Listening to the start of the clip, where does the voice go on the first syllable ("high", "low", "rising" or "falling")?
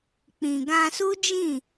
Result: low